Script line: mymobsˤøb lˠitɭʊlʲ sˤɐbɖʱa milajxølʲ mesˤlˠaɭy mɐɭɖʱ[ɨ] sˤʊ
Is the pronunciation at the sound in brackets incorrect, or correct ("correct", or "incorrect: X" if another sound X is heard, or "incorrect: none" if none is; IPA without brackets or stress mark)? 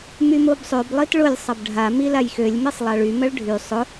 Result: incorrect: y